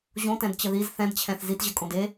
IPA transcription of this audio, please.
ʑ õ t ɛ̃ d t͡ɕ ə ð i z θ ɛ̃ d t͡ɕʰ ɛ̃ θ z i t ʑ ə kʼ õ d e

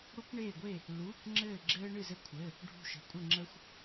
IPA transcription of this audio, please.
ɽ u˥ k ɳ eː˥˧ ɡʷ e˥˧ | l uː˧˥˧ k ŋ͡ǁ ɘː˥˧ ɡ͡ǁ ɘː˥ ɳ ɨ˥˧ z ɘ˥ kʷʰ ɘ˧˥˧ | ɖʱ ṳ˥˧ ʃ ə̤˧˥˧ kʷʼ ɘ˥˧ ŋ͡ǁ ə˥ xʷ

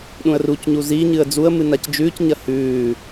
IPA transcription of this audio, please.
ɗ ũ ə̯ r u c ɲ u z i ɲ ɨ ə̯ d͡z u ə̯ m ɨ n a c d͡ʒ ʉː c ɲ ɐ h ʉː

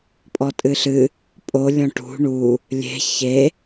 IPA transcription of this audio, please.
pʼ ɔ tʼ ɨ ɬ ɨ | pʼ o lʲ ɔ̃ ʈ ṳ ɳ u | lʲ e̤ ç e

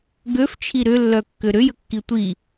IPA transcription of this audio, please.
ɡ ø f t͡ʃʰ i ɾ ʏ lː œ kː ʏ ɾ ʏ j ə kː i tʷ i

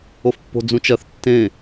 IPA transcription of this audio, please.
o f pː o̤ d͡z ũ t͡ʃ ɜ θ tː ẽ

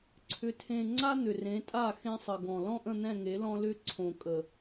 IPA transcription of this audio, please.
ǀʰ ʏ˨ tʰ ẽ˨ ŋ͡ǀ a˦ n̪ ʏ˨ r ẽ˨˦ tʼ a˦˨ x ẽ˦ sˤ ə˨ ɡ ɔ̃˨ l ɔ̃˦ ʔ ə̃˦˨ n̪ ɛ̃˦˨ ŋ e˨˦ l ɔ̃˦ l ʏ˦ ǀʰ õ˨ kʼ ə˨

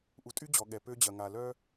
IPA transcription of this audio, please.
ʔ u˨ tʼ y˦ d͡ʑ ɔ˨ ɠ ɛ˨ p ø˦ d͡ʑ ɐ˨ ŋ a˨ l œ˦

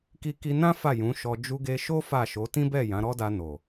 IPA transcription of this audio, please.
k i˧ k i˧ n ã˦ f a˦˨ j ũ˨˦ ʃ ɔ˧ d͡ʒ u˧ ɡ e˧ ʃ o˦ f a˦˨ ʃ o˨˦ t ĩ˦ b ɛ˦˨ j ã˨˦ ɾ ɔ˦ d a˧ n o˨

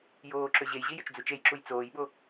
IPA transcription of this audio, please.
j oː ǁ ø ʑ e j ʑ i j ʏ t͡ʃ d͡z u t͡ʃ e j ǁ u j t͡s oː j ɓ o

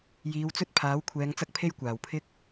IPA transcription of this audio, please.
j iː˨˧ w t͡s ɵ˥ t̚ pʰ aː˨˥ w kʷʰ ɛː˨˧ ŋ t͡s ɐ˥ k̚ pʰ e˥ j kʷ aː˨˩ w pʰ ɪ˥ k̚

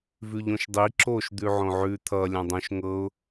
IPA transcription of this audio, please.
v ʉ ʎ õ ʃ dˤ i ǁ o ʃ d̪ ʉ ʕ õ ʕ ʉ t̪ʰ ʌ lʲ ã dˤ õ ʃ ŋ ɤ ʊ̯

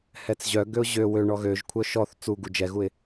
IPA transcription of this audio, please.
h ɛ t͡s ʑ œ ɡ ø ʊ̯ ʑ ø w ø ɳ ɔ ɣ ø ʒ kʷʰ œ ʃ ɔ θ t͡s u ɡ u d͡ʒ ɛ ɣ u ɪ̯

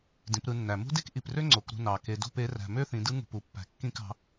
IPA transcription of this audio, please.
d ĩ˩˧ p ɾ ɯ˩˧ nː æ˩ m ṳ˥ d e˥ k ʔ i˩ p r ø˥ ŋ͡ǀ o˩˧ k ɾ ṳ˧ n ɑ˩ k e˩ d o̤˧ p e˩˧ r æ̤˩ m ø˥ θ ĩ˩˧ d ɯ˧˥ ŋ ṳ˩ p u˩ pː æ̤˩ kː ĩ˧ k ɑ̤˩˧

